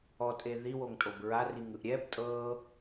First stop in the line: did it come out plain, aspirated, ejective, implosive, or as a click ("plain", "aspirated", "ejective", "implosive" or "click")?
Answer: ejective